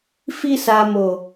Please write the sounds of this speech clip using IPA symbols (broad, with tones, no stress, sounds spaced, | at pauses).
f i˧ s a˨ m o˨